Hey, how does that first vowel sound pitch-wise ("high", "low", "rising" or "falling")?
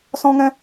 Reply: high